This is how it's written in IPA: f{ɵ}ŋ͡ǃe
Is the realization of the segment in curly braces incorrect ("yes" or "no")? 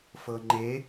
yes